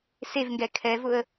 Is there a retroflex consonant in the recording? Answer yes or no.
no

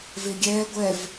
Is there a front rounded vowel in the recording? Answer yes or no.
no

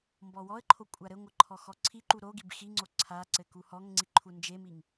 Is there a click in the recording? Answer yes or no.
yes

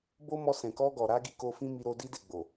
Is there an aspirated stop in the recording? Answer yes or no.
no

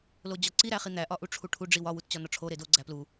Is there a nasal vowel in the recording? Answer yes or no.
no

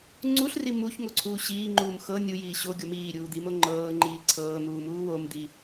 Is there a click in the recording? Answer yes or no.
yes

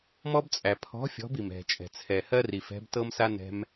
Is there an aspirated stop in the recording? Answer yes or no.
yes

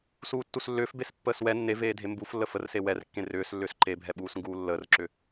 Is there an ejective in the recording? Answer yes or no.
no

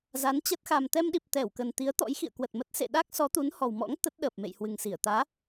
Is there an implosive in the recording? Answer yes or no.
yes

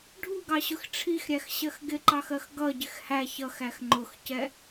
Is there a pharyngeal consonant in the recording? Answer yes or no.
no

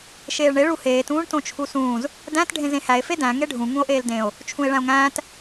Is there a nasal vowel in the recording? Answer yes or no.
yes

